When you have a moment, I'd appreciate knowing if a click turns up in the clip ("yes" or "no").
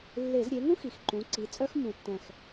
yes